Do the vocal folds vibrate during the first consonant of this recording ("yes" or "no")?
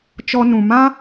no